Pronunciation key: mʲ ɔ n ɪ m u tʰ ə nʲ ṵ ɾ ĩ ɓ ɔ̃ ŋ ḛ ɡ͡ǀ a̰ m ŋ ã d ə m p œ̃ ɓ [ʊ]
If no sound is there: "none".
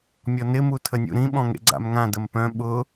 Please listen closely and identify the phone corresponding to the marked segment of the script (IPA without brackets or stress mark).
ʊ